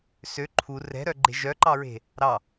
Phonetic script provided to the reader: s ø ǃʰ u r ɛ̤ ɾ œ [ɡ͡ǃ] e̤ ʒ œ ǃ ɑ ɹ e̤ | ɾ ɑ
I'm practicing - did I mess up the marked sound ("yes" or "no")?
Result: no